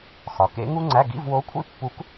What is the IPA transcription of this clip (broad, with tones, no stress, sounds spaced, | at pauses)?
x ɒ˩˧ k ḛ˧˥ ŋ u˥ ŋ͡ǀ æ˧˥˧ ɡ ḭ˧˥˧ v w o˧˥ kʷʰ ḭ˥ pː u˧˥ k